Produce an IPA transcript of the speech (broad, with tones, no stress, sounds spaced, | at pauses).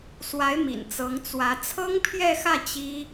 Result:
s w a˧˥ ɪ̯ m ḭ˨˩ n t͡s ɤ˧˥ ŋ t͡s w ä˧˥ t͡sʰ ɤ˥ ŋ pʰ j ɛ˥˧ x ä˥˩ t͡ɕ i˥